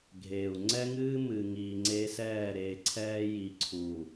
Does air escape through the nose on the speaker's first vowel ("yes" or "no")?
no